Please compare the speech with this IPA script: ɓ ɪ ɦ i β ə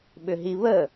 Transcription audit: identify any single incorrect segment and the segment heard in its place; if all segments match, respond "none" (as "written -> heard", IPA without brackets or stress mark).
ɪ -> ʏ